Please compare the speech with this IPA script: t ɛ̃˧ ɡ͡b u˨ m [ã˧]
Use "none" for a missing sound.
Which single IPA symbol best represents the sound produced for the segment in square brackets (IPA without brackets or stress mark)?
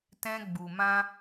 ã˧